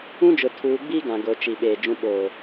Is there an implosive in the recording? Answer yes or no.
yes